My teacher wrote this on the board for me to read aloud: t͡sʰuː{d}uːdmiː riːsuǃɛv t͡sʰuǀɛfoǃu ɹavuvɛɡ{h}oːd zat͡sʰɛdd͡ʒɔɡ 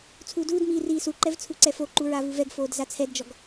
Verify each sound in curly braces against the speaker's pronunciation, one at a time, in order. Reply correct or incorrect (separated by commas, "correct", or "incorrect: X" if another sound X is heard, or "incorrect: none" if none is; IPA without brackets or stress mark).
correct, incorrect: f